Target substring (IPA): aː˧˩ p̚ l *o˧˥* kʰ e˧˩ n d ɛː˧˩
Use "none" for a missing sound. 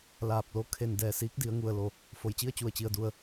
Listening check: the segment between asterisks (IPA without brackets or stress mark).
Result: o˧˥